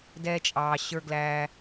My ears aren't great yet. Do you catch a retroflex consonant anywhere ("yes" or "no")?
no